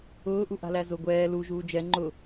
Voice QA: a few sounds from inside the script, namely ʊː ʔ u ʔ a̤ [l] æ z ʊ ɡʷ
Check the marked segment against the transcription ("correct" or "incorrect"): correct